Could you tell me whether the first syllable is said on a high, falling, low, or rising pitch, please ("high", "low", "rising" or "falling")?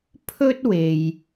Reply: high